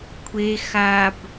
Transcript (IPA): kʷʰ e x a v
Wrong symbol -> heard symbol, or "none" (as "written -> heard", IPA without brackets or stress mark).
v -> b